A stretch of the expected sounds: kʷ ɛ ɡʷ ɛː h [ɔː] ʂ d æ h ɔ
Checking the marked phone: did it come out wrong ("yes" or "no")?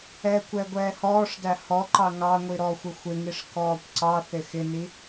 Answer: no